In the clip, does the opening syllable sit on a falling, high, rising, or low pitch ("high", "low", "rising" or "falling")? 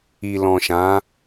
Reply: low